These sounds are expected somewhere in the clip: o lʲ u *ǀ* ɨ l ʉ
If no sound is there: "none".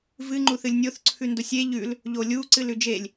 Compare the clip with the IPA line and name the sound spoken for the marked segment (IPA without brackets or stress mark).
ǀ